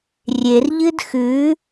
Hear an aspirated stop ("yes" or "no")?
no